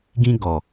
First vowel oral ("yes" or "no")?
no